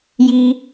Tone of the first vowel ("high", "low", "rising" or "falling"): high